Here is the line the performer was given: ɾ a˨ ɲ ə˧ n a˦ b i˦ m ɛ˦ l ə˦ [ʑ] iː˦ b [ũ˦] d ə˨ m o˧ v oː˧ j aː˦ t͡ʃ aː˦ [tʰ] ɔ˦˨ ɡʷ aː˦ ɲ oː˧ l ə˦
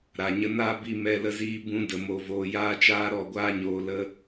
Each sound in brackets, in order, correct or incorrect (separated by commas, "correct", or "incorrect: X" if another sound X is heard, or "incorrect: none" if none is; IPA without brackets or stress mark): incorrect: z, correct, incorrect: ɾ